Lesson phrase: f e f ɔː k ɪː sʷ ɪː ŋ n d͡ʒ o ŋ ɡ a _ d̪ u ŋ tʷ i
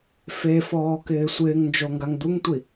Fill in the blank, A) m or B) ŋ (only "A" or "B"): B